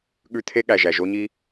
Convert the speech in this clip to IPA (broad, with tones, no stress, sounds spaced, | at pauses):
ɠ ʉ˦ t̪ʰ e˦ ɠ æ˩ ʒ æ˩ ʒ o˦ ɲ i˦